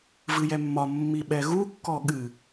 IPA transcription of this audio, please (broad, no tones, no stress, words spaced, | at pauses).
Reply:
vɨjɛmːɒ mːiɓɛɣu kːɔɠɨ